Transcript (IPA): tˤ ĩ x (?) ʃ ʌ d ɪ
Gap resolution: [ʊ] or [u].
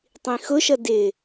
ʊ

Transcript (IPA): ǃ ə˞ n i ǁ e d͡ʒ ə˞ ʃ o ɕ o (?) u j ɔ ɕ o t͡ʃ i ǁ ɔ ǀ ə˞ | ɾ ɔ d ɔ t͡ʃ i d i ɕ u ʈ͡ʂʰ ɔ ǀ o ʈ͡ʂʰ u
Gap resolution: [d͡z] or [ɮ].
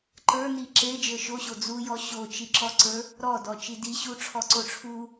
d͡z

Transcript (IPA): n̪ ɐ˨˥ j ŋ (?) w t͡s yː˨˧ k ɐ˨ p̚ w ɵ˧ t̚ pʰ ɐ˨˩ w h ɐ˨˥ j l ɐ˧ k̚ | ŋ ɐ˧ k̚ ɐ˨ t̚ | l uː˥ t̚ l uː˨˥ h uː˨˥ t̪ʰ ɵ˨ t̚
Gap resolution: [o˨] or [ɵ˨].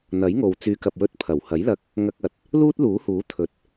o˨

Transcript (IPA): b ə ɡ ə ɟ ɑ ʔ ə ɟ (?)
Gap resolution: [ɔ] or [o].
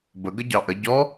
ɔ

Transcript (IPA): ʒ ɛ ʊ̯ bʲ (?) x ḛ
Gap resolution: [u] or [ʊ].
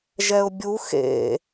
u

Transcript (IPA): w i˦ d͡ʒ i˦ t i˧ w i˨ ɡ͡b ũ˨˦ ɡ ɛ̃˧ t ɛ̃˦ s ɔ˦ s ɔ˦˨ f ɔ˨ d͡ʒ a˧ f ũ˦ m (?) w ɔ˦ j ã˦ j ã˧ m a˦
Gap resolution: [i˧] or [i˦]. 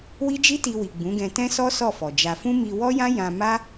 i˧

